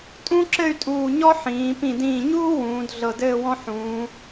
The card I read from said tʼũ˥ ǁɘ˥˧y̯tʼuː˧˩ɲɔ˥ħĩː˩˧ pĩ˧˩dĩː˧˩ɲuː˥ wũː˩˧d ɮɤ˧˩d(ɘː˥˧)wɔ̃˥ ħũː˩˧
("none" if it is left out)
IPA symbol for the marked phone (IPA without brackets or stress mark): ɘː˥˧